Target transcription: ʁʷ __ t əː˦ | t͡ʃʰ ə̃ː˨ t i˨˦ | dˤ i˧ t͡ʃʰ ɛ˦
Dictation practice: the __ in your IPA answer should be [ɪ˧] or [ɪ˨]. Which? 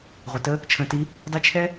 ɪ˨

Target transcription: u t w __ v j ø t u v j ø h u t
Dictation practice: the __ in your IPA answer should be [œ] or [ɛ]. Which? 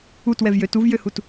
ɛ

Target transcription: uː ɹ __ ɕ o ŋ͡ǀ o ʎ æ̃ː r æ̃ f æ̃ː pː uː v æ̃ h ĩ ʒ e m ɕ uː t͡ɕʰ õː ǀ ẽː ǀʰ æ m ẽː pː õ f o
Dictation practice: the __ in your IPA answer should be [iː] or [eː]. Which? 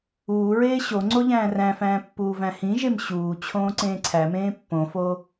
eː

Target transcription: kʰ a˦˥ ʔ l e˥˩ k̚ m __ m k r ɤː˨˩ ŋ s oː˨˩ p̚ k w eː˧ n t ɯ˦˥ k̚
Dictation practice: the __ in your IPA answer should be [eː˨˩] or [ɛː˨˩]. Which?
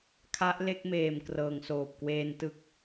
eː˨˩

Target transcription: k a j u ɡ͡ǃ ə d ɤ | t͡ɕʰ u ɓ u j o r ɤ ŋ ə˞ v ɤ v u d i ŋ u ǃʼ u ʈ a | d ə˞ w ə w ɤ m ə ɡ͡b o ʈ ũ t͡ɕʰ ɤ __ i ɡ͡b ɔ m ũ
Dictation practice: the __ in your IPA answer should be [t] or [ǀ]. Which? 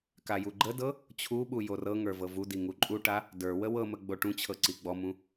ǀ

